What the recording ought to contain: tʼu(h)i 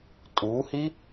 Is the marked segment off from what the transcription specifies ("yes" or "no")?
no